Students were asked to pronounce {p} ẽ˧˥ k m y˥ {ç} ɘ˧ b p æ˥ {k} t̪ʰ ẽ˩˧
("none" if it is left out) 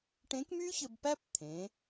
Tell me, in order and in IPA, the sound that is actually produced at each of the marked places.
ʈ, ç, p

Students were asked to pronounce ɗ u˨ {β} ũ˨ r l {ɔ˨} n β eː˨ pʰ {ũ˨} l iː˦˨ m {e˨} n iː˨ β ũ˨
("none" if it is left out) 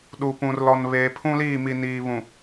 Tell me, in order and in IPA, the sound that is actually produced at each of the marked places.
p, ɔ˨, ũ˦, i˨

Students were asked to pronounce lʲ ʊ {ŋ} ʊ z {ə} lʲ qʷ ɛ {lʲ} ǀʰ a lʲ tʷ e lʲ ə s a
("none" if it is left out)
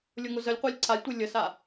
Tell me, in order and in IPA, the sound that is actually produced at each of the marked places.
ŋ, ə, lʲ

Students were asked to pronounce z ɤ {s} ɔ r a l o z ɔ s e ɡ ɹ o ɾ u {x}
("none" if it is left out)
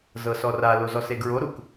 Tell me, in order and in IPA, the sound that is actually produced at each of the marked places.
s, k

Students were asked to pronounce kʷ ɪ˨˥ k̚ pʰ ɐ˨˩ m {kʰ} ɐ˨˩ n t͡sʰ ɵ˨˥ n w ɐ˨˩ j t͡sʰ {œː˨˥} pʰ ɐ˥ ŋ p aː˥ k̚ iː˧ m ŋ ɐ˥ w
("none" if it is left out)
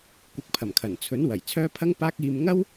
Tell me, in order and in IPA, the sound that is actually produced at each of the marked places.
kʰ, œː˥

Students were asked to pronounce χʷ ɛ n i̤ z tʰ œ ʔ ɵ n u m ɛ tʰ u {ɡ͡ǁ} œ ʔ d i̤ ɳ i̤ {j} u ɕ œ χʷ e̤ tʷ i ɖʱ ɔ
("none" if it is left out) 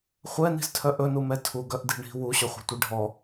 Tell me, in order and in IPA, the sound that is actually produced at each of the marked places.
ɡ, w

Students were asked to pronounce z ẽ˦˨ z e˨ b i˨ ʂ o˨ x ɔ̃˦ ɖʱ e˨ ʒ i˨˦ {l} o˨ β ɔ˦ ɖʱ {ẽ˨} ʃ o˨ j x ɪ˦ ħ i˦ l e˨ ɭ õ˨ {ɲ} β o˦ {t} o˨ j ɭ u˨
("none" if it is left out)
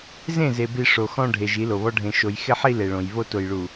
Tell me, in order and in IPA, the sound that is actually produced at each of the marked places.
l, ẽ˨, j, t

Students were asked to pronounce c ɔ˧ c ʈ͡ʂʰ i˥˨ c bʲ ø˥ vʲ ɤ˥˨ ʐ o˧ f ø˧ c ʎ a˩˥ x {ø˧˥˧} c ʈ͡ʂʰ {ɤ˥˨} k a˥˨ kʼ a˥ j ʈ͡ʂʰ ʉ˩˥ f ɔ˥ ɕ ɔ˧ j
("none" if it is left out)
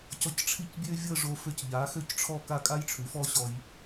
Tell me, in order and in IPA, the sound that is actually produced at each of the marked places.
ø˥˨, ɔ˥˨

